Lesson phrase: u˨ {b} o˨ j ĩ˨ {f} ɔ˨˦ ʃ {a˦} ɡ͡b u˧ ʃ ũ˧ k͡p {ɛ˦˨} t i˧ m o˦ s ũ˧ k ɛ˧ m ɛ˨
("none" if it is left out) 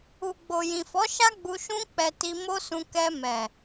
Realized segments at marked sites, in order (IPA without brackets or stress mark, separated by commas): ɡ͡b, f, a˦, ɛ˨